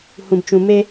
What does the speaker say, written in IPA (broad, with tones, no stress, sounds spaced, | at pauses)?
h ũ˨ b t͡ʃ ũ˨ m e˦